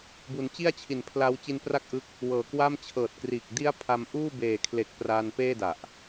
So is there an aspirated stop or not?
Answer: yes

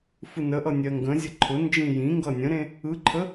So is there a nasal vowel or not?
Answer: yes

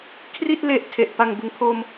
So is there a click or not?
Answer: no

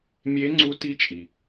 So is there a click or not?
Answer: yes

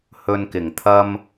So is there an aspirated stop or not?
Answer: yes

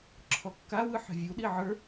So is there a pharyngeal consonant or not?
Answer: yes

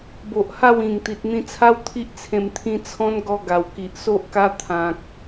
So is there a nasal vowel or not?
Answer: yes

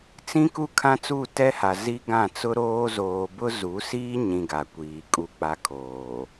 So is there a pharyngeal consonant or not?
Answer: no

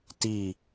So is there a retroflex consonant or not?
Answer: no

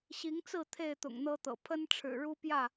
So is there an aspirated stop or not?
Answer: yes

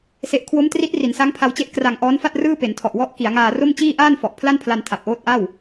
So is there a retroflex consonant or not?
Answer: no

